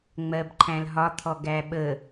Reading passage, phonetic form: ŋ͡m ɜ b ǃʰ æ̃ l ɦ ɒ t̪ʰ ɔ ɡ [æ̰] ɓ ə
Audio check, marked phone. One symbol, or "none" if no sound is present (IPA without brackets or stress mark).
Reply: æ